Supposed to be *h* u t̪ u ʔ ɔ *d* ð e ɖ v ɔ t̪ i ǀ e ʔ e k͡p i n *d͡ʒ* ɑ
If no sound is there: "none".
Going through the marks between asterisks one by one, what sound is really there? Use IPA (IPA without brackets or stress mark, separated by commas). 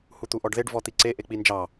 h, ɖ, d͡ʒ